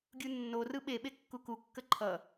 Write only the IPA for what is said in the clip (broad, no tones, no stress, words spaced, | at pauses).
ɡʲunːo rɯɓe ɓekːuku kːəǃʰʌ